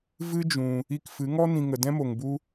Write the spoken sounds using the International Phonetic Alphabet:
v ɨ˦ d͡ʒ ũ˧ | i˧ k f ɨ˨˦ ŋ ɔ˦ n ĩ˧ ŋ ə˧ d ɛ̃˦ m o˧ ŋ b u˦

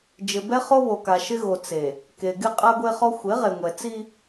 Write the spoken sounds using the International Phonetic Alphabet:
d͡ʒ ɪ˨ b ɛ˦ χ o˦ β o˨ k a˨ ʃ ɪ˦ ɣ o˨ t͡s e˨ | k e˨ ɡ ɪ˦ qʼ a˦ ɡʷ e˦ χ ɔ˦ xʷ e˨˦ ʁ e˨ ŋʷ ɛ˨ t͡s i˦

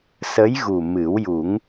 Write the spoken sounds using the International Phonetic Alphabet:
s ə˧˥ j ɣ u˨˩ m ɨ˨˩˦ w j u˨˩˦ ŋ

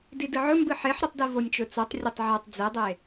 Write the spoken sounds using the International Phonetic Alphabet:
d i d ɨ ʕ ɵ m b ɨ ħ e ħ ɾ ɨ tˤ d i v o nʲ t͡ʃ ɵ t͡s o tˤ rʲ ɐ tˤ ʕ a tˤ d͡z e dˤ e

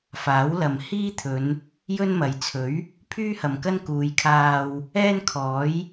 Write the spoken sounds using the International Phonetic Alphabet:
f aː˨˥ w l ɐ˨ m h iː˥ t̪ʰ ɵ˨˧ n | j ɵ˥ n m ɐ˨ j t͡sʰ ɵ˨˥ ɥ | pʰ yː˥ h ɐ˨ m k ɐ˥ n k uː˨˧ j kʰ aː˧ w | ɛː˥ n kʰ ɔː˨˥ j

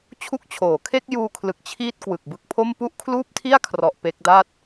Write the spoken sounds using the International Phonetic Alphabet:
t͡ɕʰ u˦˥ k̚ t͡ɕʰ oː˩˦ kʰ e˥˩ k̚ j uː˧ kʰ l ɯ˨˩ k̚ t͡ɕʰ iː˥˩ t̚ k w ɯ˨˩ k̚ b ɯ˦˥ k̚ pʰ o˥˩ m p u˥˩ ʔ kʰ l uː˥˩ p̚ tʰ i˥˩ a̯ kʰ r ɔ˨˩ ʔ p e˦˥ k̚ d a˥˩ t̚

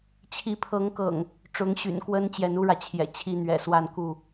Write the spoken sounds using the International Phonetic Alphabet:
t͡ɕʰ i˨˦ pʰ ɤ˨˦ ŋ k ɤ̰˨˩ ŋ | ʈ͡ʂ ʊ˨˦ ŋ ɕ y̰˨˩ n k w ə˦ n t͡ɕ j ɛ˨˦ n u˦ ɻ ä˨ t͡ɕʰ j ɛ̰˨˩ t͡ɕʰ i˦ n̪ ɥ ɛ̰˨˩ s w a˥˨ n k u˥˨

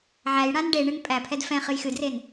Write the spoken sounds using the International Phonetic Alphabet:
ʕ æ j ɽ ã n ɖ e ɳ ɨ n pʼ æ pʰ ɛ d f ɛ̃ χ ɨ j x ɨ d r e n

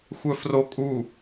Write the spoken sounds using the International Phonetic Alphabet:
xʷ œ f r o kʼ u

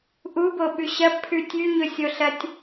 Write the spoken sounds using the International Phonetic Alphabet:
ʔ u b o ɓ ʉ ɕ ɐ b pʰ ʉ tʲ ʉ ɲ ɵ sʲ o ɬ ɐ tʲ

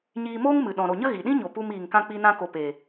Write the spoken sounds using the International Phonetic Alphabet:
ɲ iː˧ m oː˦ ŋ m ɨ˨ ɗ ɔ̃˨ ɾ o˨ ɲ ə˦ ɣ i˨ ɗ ĩ˦ ɲ o˨ p u˧ m iː˨ ŋ k ã˧ k͡p i˧ n ã˧ k o˨ p e˨

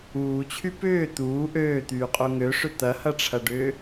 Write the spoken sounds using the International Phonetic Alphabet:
uː t͡ɕʰ y p ʏː t̪ uː ʔ øː t̪ yː qʼ o ŋ ø ʂ ʏ t̪ ɐ h ɐ ʈ͡ʂʰ ɐ ɖ ʏː

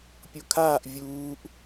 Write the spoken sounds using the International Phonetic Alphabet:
pʲ o kʰ aː ʔ vʲ uː ʔ

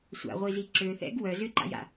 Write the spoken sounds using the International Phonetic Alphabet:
sʷ a̰ ʁʷ i z i ǁ ø θ ɛ̰ ɡ w œ z ʏ ǃ a̰ j a̰

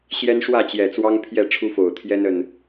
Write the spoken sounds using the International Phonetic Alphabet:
ɕ j ɛ˦ n ʂ w ä˥˨ t͡ɕ j ɛ˨˩ t͡s w ɑ˦ ŋ pʰ j ɛ˥˨ ʈ͡ʂʰ u˦ f o˨˩ ʊ̯ t̪ʰ j ɛ˦ n ə˨˩ n

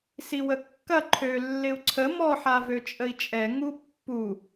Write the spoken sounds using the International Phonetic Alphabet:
s i w ə kː ɐ ǃʰ ø lː ɪ u̯ ǀʰ ə m ɔ ħ a v ø t͡ʃʼ ə i̯ t͡ʃʼ ɛ ŋ u pː u

